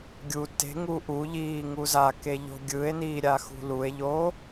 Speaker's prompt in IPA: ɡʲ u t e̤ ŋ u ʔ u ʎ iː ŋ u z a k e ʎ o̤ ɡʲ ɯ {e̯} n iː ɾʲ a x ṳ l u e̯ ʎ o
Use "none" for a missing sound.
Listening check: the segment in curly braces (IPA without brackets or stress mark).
e̯